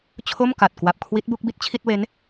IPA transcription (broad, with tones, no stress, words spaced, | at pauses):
t͡ɕʰo˥˩mka˨˩t̚ kwa˨˩p̚kʰwi˦˥t̚bu˥˩k̚ bi˥˩t̚t͡ɕʰi˥˩t̚we˦˥n